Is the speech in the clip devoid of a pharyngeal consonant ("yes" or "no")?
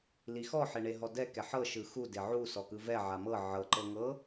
no